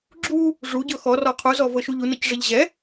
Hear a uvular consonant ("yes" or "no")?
yes